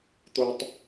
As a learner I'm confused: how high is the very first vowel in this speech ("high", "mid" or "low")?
mid